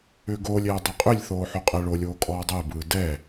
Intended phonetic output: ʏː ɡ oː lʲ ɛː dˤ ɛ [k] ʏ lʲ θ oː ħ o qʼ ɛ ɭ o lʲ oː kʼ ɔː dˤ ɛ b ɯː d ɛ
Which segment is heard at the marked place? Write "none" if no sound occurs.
qʼ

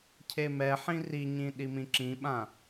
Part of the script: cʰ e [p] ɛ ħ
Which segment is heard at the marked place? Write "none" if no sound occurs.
m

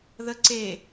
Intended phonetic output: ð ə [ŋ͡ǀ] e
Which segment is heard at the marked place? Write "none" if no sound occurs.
ǀ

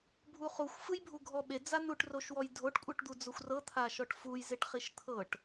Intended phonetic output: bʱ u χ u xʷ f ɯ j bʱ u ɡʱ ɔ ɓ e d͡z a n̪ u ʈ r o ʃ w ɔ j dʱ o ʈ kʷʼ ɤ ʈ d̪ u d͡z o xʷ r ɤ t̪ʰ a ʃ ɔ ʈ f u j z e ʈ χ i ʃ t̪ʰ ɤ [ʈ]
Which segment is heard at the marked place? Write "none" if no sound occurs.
ʈ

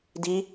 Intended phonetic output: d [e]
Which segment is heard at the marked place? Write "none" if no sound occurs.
i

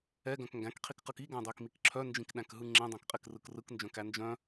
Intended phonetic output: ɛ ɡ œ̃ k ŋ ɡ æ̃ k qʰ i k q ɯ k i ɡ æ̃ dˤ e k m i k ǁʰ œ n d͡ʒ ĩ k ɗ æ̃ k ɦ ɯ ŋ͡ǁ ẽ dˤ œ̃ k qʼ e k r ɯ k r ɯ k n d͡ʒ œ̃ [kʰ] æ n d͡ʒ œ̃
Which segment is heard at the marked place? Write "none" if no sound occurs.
k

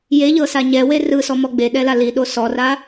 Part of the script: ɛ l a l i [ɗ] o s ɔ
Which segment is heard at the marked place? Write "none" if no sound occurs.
ɗ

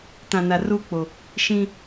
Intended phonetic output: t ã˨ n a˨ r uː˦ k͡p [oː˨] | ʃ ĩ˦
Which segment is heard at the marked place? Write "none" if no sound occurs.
o˨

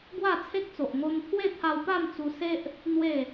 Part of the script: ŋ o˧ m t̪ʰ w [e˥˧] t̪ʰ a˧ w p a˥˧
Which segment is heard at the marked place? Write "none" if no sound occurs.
e˥˧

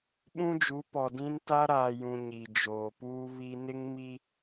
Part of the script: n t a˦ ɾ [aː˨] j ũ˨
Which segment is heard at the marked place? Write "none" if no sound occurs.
aː˨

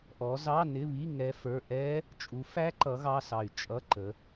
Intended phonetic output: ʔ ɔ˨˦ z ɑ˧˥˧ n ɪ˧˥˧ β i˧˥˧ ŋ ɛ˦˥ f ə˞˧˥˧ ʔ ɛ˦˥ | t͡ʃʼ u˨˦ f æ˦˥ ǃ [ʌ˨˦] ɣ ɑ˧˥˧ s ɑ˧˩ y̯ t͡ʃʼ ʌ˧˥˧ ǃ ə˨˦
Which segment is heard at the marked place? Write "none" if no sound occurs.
ʌ˨˦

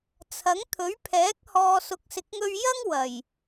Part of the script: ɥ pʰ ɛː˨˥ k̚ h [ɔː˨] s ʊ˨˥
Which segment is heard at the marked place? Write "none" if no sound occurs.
ɔː˨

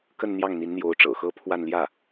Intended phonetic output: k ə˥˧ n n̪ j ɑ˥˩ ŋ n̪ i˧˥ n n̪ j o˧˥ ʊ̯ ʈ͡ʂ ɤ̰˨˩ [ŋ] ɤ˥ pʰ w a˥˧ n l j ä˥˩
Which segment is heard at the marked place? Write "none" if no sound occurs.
x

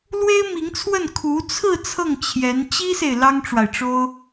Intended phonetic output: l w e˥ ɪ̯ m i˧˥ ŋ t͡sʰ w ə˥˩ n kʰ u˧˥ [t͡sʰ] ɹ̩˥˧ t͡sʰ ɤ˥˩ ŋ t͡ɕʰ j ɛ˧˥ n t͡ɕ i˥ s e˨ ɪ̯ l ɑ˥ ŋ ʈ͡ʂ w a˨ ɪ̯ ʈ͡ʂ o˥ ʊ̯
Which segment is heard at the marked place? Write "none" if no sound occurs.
t͡sʰ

